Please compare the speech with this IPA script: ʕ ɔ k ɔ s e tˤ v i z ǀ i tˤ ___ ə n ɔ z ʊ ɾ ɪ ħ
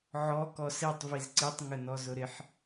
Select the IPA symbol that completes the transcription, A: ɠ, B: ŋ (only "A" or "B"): B